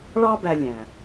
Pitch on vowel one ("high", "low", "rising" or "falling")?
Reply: high